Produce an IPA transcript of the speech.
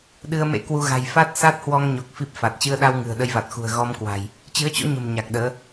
ɗɨ˧ə̯mḛ˧˥kwu˧ ɣa̤˨˩jfa˦˥t̚ sa˦˥t̚hwɔ˧ŋɲo˨˩k̚ fi˦˥p̚fa˨˩t̚ t͡ɕɨ˧ə̯ ɗa˧wŋɨ̤˨˩ə̯ ɗə˧jva˨˩t̚xṳ˨˩ə̯ ɣɔ˧mkwa̤˨˩j | t͡ɕɨ˨˦ə̯t͡ɕo̰˧˥ɲə̤˨˩m ɲa˨˩k̚ɗəː˨˦

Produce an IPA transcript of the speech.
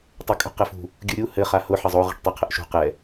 tˤokʼṳqɛfṳ | ɡʲuɾʲu hɘ χahʊ ħɘzˤo ʁi̤ʈtˤɘqʰəʔʃṳ qɛ

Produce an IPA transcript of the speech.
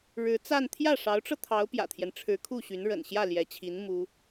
ɻɻ̩˧˥t͡sa˥˧n t̪ʰjä˥˩ʂɑ˧˥ʊ̯ʈ͡ʂɤ˧ t̪ʰɑ˧˥ʊ̯pjä̰˨˩t̪ʰjɛ˦n ʈ͡ʂʰɻ̩˧˥kʰu˥˩ɕy˧˥n ɻə̰˨˩nɕjä˥˩ ljɛ˧˥t͡ɕʰi˧˥n mu˥

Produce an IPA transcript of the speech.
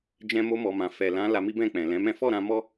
d͡ʒɛ̃˧mo˧ mɔ˨mã˨fɛ˨ lã˨˦ la˧mi˦bɛ̃˦˨k͡pɛ̃˨ lɛ̃˨˦mɛ̃˦ fɔ˦˨ɾã˧ mɔ˦

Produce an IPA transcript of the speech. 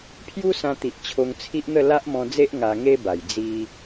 pʰju˦sã˧t̪i˨ʔ t͡ɕʰo˧ŋt͡sʰi˦ʔn̪ə˥˧ la˦ʔmɔ̃˧d͡ze˦ʔ ŋa˧ŋe˦ba˨˩j d͡zi˧

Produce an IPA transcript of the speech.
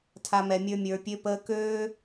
tʰa˧mɛ˧mʲə˞˦ mʲə˞˧pʲø˦pəː˦ køː˦

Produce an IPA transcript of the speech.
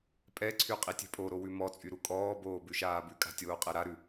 pʼɛǀʰy qʼitʲɛ̤pʼoɾo wʉmɔt͡sʼy ɾukʼɔːboː bʉʃaːbʉkʼa̤ tʲoːqʼɛɾaɾʉ

